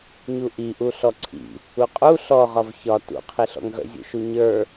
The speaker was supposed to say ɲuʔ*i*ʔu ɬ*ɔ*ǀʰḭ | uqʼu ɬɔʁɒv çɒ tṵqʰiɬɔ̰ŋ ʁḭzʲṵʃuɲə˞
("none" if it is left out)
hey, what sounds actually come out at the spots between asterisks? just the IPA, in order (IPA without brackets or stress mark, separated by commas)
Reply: i, ɔ